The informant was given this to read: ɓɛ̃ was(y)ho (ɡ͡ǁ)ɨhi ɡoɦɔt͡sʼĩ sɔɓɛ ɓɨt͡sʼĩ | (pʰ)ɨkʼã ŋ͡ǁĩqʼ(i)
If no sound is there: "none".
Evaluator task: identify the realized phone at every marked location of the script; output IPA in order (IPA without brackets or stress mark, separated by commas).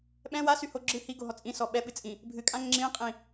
y, ɡ͡ǁ, bʱ, ĩ